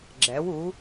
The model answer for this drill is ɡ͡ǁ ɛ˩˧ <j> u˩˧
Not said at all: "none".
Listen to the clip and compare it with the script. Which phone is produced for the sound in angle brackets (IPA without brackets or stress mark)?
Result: w